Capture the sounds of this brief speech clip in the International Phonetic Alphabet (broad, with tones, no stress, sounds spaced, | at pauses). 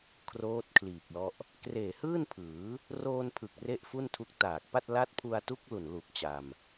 kʰ r oː˦˥ t̚ kʰ l iː˨˩ k̚ l ɔ˦˥ ʔ | k r eː˨˩ h ɯː˥˩ n pʰ ɯː˩˦ | r oː˧ n pʰ ɯ˨˩ k̚ r e˥˩ ʔ f u˥˩ n tʰ u˦˥ k̚ t aː˨˩ k̚ p a˥˩ t̚ l a˦˥ t̚ pʰ u˧ a̯ t u˦˥ k̚ l u˨˩ n l u˨˩ k̚ t͡ɕ a˧ m